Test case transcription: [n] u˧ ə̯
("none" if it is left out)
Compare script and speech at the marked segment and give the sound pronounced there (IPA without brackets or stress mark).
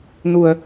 n